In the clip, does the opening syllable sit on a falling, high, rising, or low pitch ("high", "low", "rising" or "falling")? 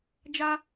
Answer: high